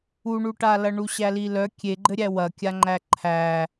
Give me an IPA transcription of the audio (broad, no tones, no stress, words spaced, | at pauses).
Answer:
uɳuʈalɐ ɳuɕælilœ kʲeɡ͡ǃɘɾʲæ wɐkʲaŋ͡ǃæ ǃʰæ